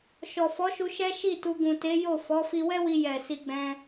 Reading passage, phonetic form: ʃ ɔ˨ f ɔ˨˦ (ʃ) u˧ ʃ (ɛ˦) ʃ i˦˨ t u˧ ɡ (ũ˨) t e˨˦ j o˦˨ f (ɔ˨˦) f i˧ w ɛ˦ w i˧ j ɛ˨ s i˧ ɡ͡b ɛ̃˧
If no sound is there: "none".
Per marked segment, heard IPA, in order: ʃ, ɛ˦, ũ˨, ɔ˨˦

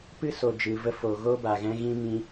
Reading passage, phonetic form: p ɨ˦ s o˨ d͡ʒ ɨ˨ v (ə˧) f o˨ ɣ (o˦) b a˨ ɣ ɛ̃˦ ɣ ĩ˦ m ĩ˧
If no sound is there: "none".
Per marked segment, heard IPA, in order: ə˧, o˦

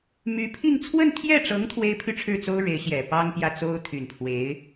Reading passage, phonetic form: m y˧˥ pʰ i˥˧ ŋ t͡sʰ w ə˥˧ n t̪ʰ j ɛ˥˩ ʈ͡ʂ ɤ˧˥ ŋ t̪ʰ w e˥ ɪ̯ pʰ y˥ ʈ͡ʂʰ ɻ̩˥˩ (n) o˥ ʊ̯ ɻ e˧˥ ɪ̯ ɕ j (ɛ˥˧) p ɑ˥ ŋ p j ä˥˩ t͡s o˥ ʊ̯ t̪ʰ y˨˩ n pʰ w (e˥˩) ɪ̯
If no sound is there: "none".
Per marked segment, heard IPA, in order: t͡s, ɛ˨˩, e˧˥

